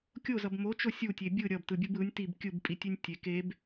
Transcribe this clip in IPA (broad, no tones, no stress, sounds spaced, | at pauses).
kʲ o z ʌ b m o t͡ʃ o sʲ u tʲ e bʲ ɯ ɾʲ ʌ b t ɯ bʲ ɯ b ɯ nʲ t i b kʲ ɯ b pʼ i tʲ e nʲ tʲ e k e b